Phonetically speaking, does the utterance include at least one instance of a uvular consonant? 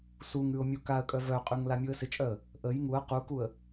yes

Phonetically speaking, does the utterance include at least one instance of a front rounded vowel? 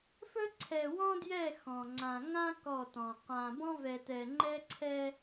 no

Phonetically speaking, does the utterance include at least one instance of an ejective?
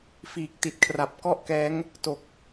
no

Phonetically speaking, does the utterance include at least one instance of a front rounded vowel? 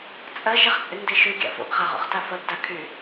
yes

